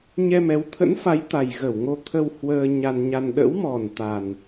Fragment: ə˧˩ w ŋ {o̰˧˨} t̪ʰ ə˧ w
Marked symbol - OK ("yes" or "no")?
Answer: no